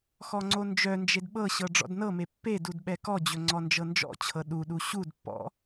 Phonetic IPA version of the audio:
x ɔ ŋ͡ǀ o n d͡ʒ œ n d͡ʒ e d ɓ ɤ ɕ ɤ ɖ͡ʐ ɔ̰ d n ɤ m e pː e d u d ɓ ɛ k ɔ d͡ʑ ɵ ŋ͡ǀ ɔ n d͡ʒ ɤ n d͡ʒ ɔ̰ t͡ɕʰ ɤ ɗ u ɗ u ɕ u d pː ɔ̰

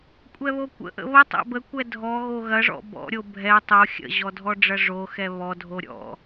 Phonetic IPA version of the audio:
kʷʼ ɛ β o kʷ ə̰ ʔ ə̰ β ə tˤ ɛ̰ b ə kʷ ɛ dʱ ɔ ɣ o ɣ ɐ ʐ ɔ̰ b ɔ̰ ɾʲ o bʱ ɛ tˤ o xʲ ə̰ ʑ ɔ dʱ ɔ ɖ͡ʐ ɐ ʐ o x ɛ β ɔ dʱ o ɾʲ ɔ̰

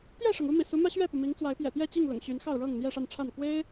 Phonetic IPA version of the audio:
t̪ j ɛ˥˨ ʂ ɤ˩ ŋ u˦ m ḭ˨˩ s u˨˦ m ä˦ ɕ ɥ ɛ˥˨ p u˩ m i˨˦ ŋ t͡s w a˨˦ ɪ̯ p j ɛ̰˨˩ t̪ j ɛ˥˨ t͡ɕ i˥˨ ŋ l ʊ̰˨˩ ŋ ɕ y˨˦ n x ɑ˥˨ ʊ̯ ɻ ɤ˥˨ ŋ n̪ j ɛ˥˨ ʂ a˥˨ n ʈ͡ʂʰ a˥˨ n k w e˦ ɪ̯

